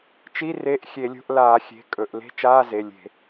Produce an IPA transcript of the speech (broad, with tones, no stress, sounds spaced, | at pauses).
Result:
t͡ʃ i˧˥˧ r e˧˥˧ ʔ xʲ e˧˩˧ lʲ o̤˧˥˧ ʔ l aː˧˩˧ xʲ e̤˩˧˩ kʼ ɵ˩˧˩ ʔ l e̤˧˥˧ t͡ʃ aː˧˥˧ z e˩˧˩ lʲ e̤˧˩˧